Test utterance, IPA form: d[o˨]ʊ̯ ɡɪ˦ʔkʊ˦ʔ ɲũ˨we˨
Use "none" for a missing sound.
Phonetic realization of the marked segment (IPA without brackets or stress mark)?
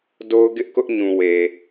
o˦